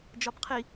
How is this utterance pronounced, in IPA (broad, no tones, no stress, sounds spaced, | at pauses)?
d͡ʒ ɒ b qʰ i